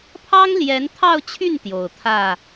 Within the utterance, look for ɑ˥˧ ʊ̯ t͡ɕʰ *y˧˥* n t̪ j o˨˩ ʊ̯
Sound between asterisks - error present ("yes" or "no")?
yes